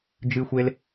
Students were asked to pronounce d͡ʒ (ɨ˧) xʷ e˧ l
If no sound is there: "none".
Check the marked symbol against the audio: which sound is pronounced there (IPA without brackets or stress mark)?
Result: ɨ˧